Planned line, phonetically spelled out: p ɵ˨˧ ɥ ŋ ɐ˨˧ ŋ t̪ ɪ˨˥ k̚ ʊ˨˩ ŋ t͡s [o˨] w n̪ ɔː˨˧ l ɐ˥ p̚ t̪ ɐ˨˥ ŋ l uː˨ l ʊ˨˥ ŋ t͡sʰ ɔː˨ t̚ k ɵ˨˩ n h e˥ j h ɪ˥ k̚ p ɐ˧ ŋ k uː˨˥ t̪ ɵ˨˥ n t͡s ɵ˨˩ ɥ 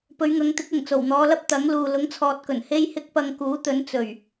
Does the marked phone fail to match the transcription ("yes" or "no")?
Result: yes